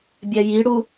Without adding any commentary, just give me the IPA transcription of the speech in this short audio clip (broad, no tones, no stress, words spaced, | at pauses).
bʲɛjiɽu